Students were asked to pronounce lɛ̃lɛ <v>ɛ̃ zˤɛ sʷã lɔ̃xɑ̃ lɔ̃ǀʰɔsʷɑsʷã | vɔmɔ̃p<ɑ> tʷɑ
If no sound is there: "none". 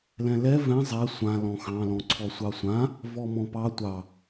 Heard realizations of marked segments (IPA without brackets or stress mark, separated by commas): v, ɑ